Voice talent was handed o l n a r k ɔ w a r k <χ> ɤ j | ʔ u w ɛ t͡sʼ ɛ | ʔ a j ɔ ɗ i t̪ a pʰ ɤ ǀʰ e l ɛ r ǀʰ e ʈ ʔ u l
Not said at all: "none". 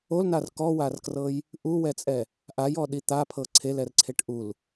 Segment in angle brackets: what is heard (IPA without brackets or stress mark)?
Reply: r